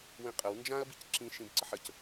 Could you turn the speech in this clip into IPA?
wĩqʼəw nd͡ʒãɐ̯ bicǁĩ ʃĩbǀəħəc

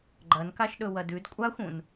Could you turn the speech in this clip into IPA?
ɡ͡ǃɐnkaʃɗɵ wɐdʉd kʷʼaxʷũn

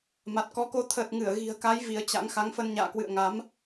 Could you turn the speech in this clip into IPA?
ma˨˩t̚kɔ˨˦ko˧ t̪ʰəː˨˩t̚ŋɨ˧˩ə̯ɣi̤˨˩ə̯ka˨˦j vi˨˦ə̯t͡ɕa̰˧˥ŋ xa˨˦ŋfə˧n ɲa̰ː˧˨kwɨ̰˧˨ə̯ ŋa˨˦m

